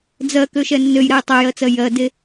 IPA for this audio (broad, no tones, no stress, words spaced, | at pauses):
d͡zɜkøʃɛ nːøjɾɛj tˤøjɜt͡sɜ jɜde